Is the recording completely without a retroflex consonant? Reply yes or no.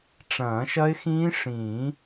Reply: no